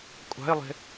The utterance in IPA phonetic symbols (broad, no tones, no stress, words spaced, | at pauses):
kʷʼa̤ɪ̯lˠe̤